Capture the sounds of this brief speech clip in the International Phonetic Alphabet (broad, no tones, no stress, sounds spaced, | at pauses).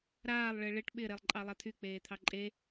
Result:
ɾ aː lˠ ɭ ɪː ɭ ɪ ʈ ɓ ɪ ɾ e lˠ ǃʼ ɑ lˠ a t̪ʰ y k͡p eː t̪ʰ ɑ ǃʼ e